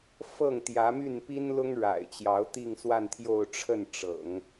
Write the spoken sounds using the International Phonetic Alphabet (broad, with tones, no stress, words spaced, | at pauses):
fɤ˥˩ŋt̪jä˧˥my˥˩n pi˥n lʊ˥ŋɻa̰˨˩ɪ̯t͡ɕjɑ˧˥ʊ̯ t̪i˥˧ŋswa˥˧nt̪ʰjo˥˧ʊ̯ʈ͡ʂʰə˥˩n ʈ͡ʂɤ̰˨˩˦ŋ